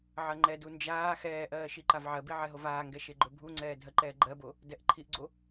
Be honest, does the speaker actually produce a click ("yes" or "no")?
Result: yes